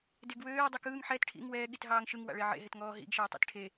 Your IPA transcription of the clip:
d e ɡ w øː dˤ ø k ɯː ŋ ħ ɛ t ʈʰ ḭ ŋ w ɛː ɠ i t ɦ ɑː ŋ ʃ ɯ ŋ w a̰ ɭ e ʕ ḛ ɦ e t ŋ ɔː ɦ ḭ ɡ ʃ ɛː tˤ ḭ t ʈʰ e

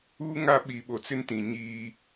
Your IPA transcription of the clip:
uː˦ ŋ a˦ ɓ i˨ ɓ o˨ t͡s ɪ˦ n t ĩ˨ ɲ iː˦

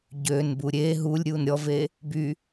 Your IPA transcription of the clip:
ɟ øː n b uː ɾʲ eː ɦ uː lʲ ɾʲ uː n ɾʲ ɔ v eː | b y

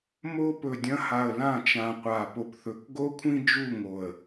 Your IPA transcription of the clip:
m o˧ p ɵ˨ dʲ ɐ̃˧ h a˨ ə̯ l ã˦˨ t͡ʃ ã˨ qʷ aː˨ p o˨ p θ ɵ˨˦ k ɡ o˦ kʷʰ ĩ˦ d͡ʒ u˦˨ ŋ o˨ ə̯

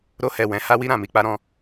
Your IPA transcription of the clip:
ɾ o˧ h ɛ˨ w ɛ̃˨˦ h a˦ w i˦ ɾ ã˦˨ m i˧ k͡p a˦ ɾ ɔ̃˦

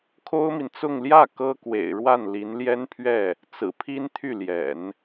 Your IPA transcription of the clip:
kʰ o˥ ʊ̯ m i˨ n t͡s ʊ˥˧ ŋ l j ä˥˩ k ɤ˥ k w ḛ˨˩ ɪ̯ ɻ w a˥˩ n l i˧˥ n l j ɛ˥ n pʰ ɥ ɛ˥˩ | t͡s ɹ̩˨˩ pʰ i˥ n t̪ʰ y˥˩ l j ɛ̰˨˩˦ n

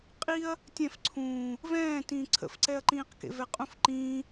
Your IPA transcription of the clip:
qʼ i ɐ̯ | tʲ ɛ̃ f ǀʰ ũː | v ɛ̃ː t ĩː ǀʰ ə̰ f ǀ ɛ ɐ̯ ǃ ĩː q k ḛ v ɛ qʼ ũ f ǃ ĩː

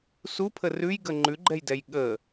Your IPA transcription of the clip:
s u pʰ ə r ʉ j ɡ ə ŋ͡ǃ ʉ ɡ͡ǃ ɛ j d ɛ j ɠ ə

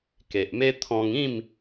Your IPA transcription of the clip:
k e˨ ʔ m e˦ t̪ʰ ɔ̃˧ ŋ ĩ˥˧ m

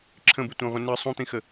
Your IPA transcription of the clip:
ǁʰ ə̃ b ɨ tʷ œ̃ ʁʷ ə̃ n ɨ sˤ ũ t̪ ĩ x ə

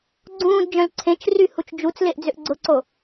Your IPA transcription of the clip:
ɡ͡ǀ ũː d d͡ʒ œ̃ l ǀʰ ẽ t͡ʃ r y h u t͡ʃ d͡ʒ u t͡s l e ʔ d͡z ʏ ʔ ɡ͡ǀ ʊ ǀ o

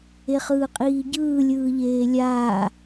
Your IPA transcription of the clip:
e χ ɯː qʼ iː ɟ ɯː lʲ ɯː ʎ eː lʲ aː

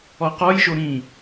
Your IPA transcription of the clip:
ɔ q ɔ j ʒ o ɾ ĩ

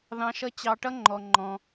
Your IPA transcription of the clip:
ð ɑ̃˨ ʃ ʌ˦ t͡ɕ ɑ˨ ʈ ʌ˥ ŋ͡ǃ ɔ˩ ŋ͡ǃ ɔ̃˩

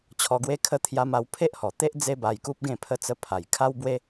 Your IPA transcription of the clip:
t͡ɕʰ ɔ˧ ɡ w e˦ kʰ ə˦ t̪ʰ j a˧ m a˧ w pʰ e˦ ʔ h ɔ˨˩ t̪ e˦ ʔ d͡z e˦ b a˧ j k u˦ p̚ ɡ ẽ˥˧ pʰ ə˧ t͡s ə˧ pʰ a˨˩ j kʰ a˦ w b w e˦

